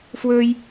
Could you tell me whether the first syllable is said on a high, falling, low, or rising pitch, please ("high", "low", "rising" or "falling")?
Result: high